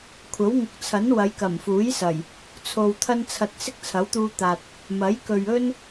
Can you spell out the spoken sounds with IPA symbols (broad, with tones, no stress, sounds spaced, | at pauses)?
kʷʰ ɐ˨˥ w ŋ ʊ˨ k̚ t͡sʰ ɐ˨˥ n w ɐ˨˧ j k ɐ˨˩ m f uː˨˥ j s ɐ˨˩ j | t͡sʰ o˨ w t̪ʰ ɐ˥ n t͡sʰ ɐ˧ t̚ s ɪ˥ k̚ t͡sʰ ɐ˨˥ w t̪ uː˧ t̪ aː˨ t̚ | m ɐ˨˥ j k ɵ˨ ɥ ɵ˥ n